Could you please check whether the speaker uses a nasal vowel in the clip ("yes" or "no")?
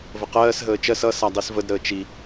no